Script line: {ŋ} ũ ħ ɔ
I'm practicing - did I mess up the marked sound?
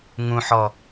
no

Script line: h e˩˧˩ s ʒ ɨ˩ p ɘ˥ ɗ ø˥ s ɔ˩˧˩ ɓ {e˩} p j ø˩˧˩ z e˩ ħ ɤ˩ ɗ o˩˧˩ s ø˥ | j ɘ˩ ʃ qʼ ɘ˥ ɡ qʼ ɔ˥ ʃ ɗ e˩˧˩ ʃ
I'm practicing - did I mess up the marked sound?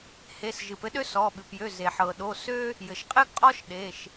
yes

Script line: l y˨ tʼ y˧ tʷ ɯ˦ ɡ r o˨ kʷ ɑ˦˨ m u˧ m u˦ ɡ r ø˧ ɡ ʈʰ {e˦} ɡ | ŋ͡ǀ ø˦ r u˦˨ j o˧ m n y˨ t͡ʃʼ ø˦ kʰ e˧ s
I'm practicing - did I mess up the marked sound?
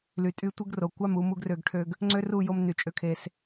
yes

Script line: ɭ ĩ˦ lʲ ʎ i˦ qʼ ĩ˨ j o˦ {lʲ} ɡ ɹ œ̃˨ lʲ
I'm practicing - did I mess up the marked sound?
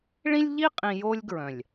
no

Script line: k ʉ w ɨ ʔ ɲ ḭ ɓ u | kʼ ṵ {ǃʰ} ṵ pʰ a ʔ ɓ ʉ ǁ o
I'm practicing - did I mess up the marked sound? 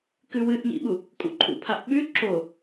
no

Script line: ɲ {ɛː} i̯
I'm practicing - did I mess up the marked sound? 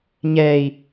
no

